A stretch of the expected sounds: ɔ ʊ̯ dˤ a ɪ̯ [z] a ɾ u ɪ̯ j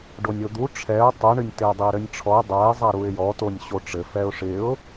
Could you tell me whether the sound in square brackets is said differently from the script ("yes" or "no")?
yes